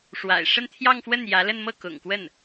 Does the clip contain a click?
no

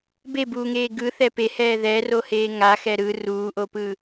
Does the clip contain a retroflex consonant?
no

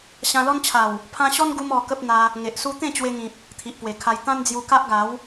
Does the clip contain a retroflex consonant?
no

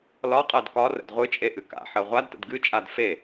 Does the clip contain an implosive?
no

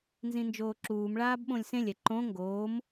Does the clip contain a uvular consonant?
no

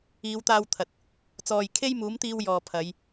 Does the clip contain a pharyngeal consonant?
no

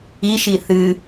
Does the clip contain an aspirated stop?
no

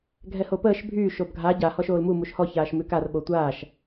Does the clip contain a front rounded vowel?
yes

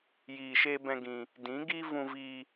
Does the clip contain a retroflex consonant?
no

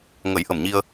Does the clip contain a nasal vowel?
no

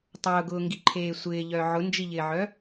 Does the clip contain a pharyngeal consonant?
yes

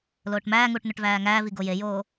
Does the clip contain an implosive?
no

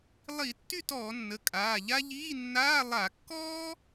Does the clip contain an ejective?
yes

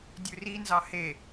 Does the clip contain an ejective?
no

